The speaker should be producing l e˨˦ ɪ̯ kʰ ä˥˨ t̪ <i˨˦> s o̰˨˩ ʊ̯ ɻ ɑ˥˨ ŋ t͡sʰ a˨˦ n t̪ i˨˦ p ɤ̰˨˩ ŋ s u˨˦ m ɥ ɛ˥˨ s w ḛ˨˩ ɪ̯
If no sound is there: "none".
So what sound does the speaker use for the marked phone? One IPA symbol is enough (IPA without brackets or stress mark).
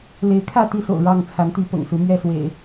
i˥˨